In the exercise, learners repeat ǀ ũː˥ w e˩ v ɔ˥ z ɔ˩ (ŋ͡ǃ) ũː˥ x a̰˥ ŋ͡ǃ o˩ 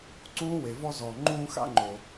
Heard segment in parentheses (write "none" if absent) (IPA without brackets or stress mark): ŋ͡ǃ